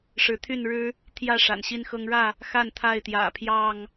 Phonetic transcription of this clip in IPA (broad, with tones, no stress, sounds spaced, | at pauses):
ʂ ɻ̩˨˦ t̪ʰ y˥˨ n ɻ ɻ̩˦ | t̪ʰ j ä˥˨ ʂ a̰˨˩ n ɕ i˦ n x ɤ˦ ŋ ɻ ä˥˨ | x a˥˨ n t̪ʰ a˥˨ ɪ̯ t̪ j ä̰˨˩ pʰ j ɑ˥˨ ŋ